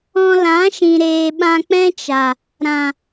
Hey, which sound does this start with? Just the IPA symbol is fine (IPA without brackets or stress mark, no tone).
ɔ̃